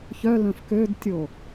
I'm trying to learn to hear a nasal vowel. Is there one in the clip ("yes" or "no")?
yes